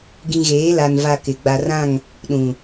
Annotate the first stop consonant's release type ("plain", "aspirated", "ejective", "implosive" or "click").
plain